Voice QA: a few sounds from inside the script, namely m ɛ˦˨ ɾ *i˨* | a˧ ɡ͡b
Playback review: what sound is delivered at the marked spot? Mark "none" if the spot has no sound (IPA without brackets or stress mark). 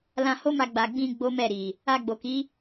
i˨